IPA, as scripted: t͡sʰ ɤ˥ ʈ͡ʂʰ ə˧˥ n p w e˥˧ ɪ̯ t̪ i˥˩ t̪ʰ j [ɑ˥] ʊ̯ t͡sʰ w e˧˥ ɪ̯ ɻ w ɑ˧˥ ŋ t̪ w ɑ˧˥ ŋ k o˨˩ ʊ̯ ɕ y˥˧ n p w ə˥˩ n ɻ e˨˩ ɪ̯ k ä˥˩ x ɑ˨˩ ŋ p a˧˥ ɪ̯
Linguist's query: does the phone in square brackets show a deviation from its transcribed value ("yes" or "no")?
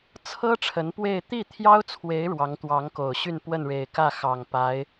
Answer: no